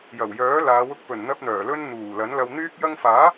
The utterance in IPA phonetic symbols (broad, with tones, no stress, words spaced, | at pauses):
jɐ˨˩wjœː˨˥laː˨˧wʊ˧k̚ pɵ˨˩nn̪ɐ˧p̚n̪œː˨˩ lɵ˧n n̪uː˨˩lɐ˨˥nlɐ˧w n̪yː˥k̚ jɐ˧ŋfaː˨˥